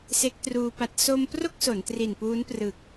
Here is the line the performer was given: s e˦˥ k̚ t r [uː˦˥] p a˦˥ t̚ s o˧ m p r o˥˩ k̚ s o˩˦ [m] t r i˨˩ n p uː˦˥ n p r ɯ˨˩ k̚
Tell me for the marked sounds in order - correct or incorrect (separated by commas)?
incorrect, incorrect